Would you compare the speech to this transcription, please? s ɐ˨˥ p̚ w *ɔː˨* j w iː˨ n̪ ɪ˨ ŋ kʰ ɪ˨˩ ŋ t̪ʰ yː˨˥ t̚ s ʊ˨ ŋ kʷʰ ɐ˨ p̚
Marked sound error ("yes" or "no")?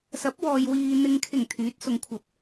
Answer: no